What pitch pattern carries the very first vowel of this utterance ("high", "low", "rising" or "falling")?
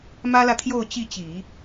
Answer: high